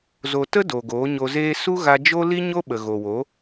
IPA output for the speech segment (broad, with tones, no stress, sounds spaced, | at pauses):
z o˨ t ə˦ d o˨ ɡ oː˨˦ ɲ o˧ z eː˦ s u˦ ɣ a˧ d͡ʒ o˦ l i˦ ɲ o˦ ɓ ə˨ ɣ o˨ w o˨˦